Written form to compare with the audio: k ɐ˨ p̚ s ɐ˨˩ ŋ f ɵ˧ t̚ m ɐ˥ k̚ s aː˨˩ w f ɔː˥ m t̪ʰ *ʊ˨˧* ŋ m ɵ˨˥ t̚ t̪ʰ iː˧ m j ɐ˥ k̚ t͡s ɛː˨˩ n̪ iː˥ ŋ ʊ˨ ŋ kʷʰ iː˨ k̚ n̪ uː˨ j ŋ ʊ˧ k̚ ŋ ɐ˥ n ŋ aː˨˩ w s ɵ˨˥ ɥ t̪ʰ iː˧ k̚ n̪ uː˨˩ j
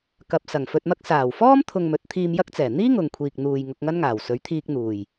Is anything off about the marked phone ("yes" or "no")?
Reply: yes